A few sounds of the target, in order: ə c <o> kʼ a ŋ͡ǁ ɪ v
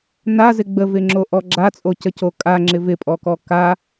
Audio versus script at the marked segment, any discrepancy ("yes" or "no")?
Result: no